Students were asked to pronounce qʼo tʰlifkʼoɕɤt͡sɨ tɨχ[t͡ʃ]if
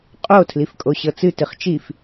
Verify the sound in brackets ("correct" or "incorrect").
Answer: correct